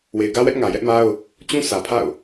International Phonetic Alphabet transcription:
we˨ɪ̯ɡä˦wɛ˦ʔ ŋä˨jɛ˦ʔma˦ʊ̯ | t͡ɕũ˦sä˨pʰa̰˦˨ʊ̯

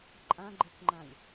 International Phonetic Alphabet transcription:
ǃʼãɡ͡ǃekŋ͡ǃãlʲ

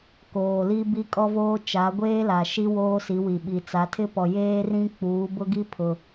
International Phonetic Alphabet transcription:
koː˨li˦bi˦ kʼɔ˦voː˦ t͡ʃa˨˦ɡʷeː˦la˨ ʃi˦woː˦si˨˦wi˨ ɓi˨ t͡sa˨˦tʰɪ˦pɔ˨ jeː˦rĩ˦ k͡puː˨˦bʊ˦ɡi˦ pʰʊ˦

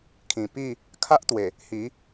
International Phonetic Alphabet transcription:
kʰĩ˨˩pi˥˧ | kʰa˦ʔt̪we˨˩ | hi˨˦

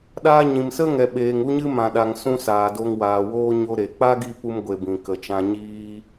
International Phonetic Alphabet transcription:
ɗaː˧ɲĩ˨msə˦ŋɛ˨ ɓeː˨ŋu˦ɲɨ˦ mã˨ɗa˨ŋsũ˧ saː˨ do˧ŋwaː˨woː˦ ɲo˦ɾe˨ k͡pa˦ɡi˧ pu˧mɡʷe˨ bĩ˨ kə˨ t͡ʃã˧ɲiː˦

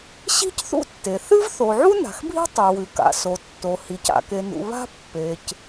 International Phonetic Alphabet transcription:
ɕi̤˥cθṵ˥tːe˩ θɨ˥vθo˩ʕu˥ na̤˩xbʱi̤˥ tˤʉ˩wʉ˩ ka̰˩so˩tːo˩hi˩c a̰˩ke˩nṵ˩ βa̤˥pːe˩c

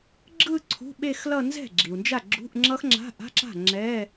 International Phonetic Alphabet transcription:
ɡ͡ǁɯ˥˧ ǀʰṳ˧˥˧ɓe˥˧xlʌ˥˧ nzɛ̤˥˩ɡ͡ǁi˩u̯nd͡ʒa˥˩ ɡ͡ǁṳ˧˥˧ʔ ŋ͡ǁʌ˦˥x ŋ͡ǁa̤˧˥˧ʔa̤˧˥˧ǁa̤˥˩ ŋ͡ǁɛ˧˥˧

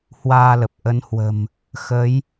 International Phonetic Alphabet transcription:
hwaː˧lə˨˩p̚ ʔə˨˦nhwə̤˨˩m | xə˨˦j

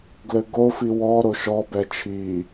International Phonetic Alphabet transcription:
ɡlɘɡofi wɔ ɾoʃɔbɛ t͡ʃʰi

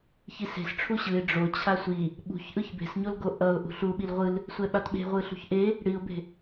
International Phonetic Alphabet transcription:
çise̤s ʈ͡ʂʰuɕɯɪ̯ ɖ͡ʐot͡ɕʰa sʷi | ɓṳçʔɯç be̤sɲolɡo ʔʌʊ̯ ʔṳɬuɓil ʁʷɯl | sʷɛɓatɓe̤ ʁʷɯɬṳçʔe | ɽiʊ̯be̤

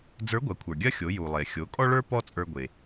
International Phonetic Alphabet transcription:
d͡zə˞˧˥ɡʷɐ˩˧kʷʰə˞˩ ɡʲɐ˥xʲo˩˧ ju˩lˠe˩ xʲo˩˧kʼɔ˥ɭə˞˥ pɔ˥t͡sʼə˞˧ ɡʷe˩

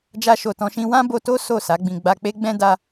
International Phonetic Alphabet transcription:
d͡ʒa˧ʃo˨tɔ̃˧ʃĩ˧ wã˦bo˧to˦ so˦˨sa˨˦ɡ͡bĩ˧ ɡ͡ba˧k͡pe˦ɡ͡bɛ̃˦ da˧

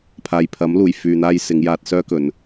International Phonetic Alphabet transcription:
pʰaː˨jpʰɐ˨˥mluː˨˩j fyː˨n̪aː˧j sɪ˨˧ŋjaː˧t̚ sœː˥kɵ˨˧n

